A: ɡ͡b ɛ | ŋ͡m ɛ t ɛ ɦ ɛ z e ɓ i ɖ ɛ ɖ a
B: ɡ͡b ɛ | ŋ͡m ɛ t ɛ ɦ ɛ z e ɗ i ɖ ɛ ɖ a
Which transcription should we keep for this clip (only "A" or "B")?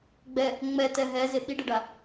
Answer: A